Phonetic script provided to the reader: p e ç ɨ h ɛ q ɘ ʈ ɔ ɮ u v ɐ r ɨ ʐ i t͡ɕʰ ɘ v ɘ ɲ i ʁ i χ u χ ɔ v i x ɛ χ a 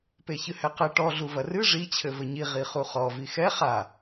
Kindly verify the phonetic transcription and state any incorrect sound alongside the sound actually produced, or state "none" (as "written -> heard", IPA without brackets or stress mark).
none